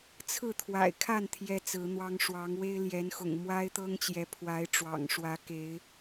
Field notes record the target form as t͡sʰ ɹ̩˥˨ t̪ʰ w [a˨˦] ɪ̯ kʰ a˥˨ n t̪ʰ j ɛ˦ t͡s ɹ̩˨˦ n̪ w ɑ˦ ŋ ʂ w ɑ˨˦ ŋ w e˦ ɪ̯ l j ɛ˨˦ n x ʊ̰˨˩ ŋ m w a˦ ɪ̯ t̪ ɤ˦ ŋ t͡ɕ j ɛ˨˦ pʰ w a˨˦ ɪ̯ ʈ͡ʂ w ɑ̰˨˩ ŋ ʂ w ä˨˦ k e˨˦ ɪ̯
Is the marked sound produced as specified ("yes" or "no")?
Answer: no